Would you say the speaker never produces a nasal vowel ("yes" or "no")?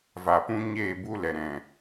no